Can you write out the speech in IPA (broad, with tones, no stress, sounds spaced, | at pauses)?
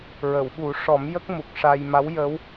ɹ ə˨˩˨ w ɓ u˨˩˦ ʂ ɔ˨˩˦ m j ə˦˥ k̚ m u˨˩ k̚ ʂ a˧ j m a˧˥ w j ə˧˥ w